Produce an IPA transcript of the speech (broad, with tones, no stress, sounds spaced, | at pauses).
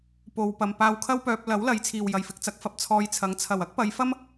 p o˨ w p ɐ˨ m p aː˧ w kʰ ɐ˥ w p œː˧ p̚ l ɐ˨˥ w l ɐ˨˧ j t͡sʰ iː˨ w j ɐ˨ j f ɪ˨˥ k̚ t͡s ɐ˨˥ k̚ f ɐ˧ p̚ t͡sʰ ɔː˧ j t͡sʰ ɐ˨˥ ŋ t͡sʰ ɐ˨˩ w ɐ˥ k̚ p ɐ˨˧ j f ɐ˥ m